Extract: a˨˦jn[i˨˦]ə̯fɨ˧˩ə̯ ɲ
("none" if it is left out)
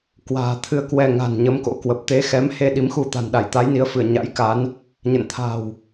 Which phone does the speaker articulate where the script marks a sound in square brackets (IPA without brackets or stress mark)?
i˨˦